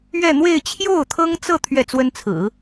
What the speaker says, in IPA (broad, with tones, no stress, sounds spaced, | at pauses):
ɥ ɛ˥˧ n̪ w e˥˧ ɪ̯ t͡ɕʰ j o˥˩ ʊ̯ t̪ʰ ɤ˥ ŋ t͡s ɤ˥˧ t̪ʰ ɥ ɛ˥˩ t͡s w ə˥ n t͡sʰ ɹ̩˨˩˦